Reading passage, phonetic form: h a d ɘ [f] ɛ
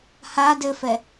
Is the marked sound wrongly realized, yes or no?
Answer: no